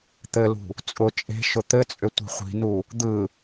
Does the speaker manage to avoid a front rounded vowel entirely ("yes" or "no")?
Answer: no